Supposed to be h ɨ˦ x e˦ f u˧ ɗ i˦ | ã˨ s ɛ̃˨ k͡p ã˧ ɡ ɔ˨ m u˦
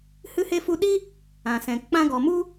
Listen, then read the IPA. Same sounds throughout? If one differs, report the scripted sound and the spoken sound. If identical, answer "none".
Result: x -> h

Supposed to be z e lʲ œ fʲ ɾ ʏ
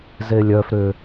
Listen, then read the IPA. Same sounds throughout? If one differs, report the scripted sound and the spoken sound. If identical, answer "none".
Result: fʲ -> f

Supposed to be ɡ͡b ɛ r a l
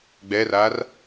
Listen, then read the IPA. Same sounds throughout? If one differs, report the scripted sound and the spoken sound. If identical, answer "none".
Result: l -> r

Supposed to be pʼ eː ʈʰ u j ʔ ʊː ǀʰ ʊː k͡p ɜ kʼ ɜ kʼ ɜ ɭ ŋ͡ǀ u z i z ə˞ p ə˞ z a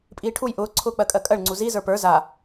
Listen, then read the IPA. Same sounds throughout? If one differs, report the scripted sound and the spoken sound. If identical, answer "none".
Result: eː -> iː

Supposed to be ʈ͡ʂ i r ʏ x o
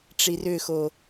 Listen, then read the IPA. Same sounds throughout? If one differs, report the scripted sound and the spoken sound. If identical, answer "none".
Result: none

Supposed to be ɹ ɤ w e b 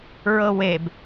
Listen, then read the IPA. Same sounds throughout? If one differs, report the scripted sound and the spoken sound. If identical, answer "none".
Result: none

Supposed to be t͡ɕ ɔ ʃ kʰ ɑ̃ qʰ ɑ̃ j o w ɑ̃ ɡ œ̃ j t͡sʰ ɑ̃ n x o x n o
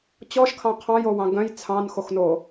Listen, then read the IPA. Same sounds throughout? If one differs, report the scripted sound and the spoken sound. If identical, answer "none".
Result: none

